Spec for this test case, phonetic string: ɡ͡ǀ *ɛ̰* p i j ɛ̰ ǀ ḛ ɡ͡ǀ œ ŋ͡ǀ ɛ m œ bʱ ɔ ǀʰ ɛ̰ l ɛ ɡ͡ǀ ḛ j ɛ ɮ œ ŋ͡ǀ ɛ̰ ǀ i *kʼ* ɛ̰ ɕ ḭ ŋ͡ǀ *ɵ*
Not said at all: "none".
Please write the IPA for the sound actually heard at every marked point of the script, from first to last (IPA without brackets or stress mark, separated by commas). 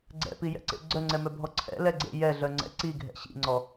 ɛ̰, ɡʱ, ɔ